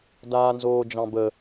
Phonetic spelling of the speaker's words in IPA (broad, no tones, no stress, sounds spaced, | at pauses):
d aː n z oː d͡ʒ ɑ̃ b ə